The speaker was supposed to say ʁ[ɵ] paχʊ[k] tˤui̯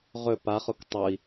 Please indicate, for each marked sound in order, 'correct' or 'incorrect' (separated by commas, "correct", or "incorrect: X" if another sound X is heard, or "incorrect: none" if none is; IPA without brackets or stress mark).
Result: correct, correct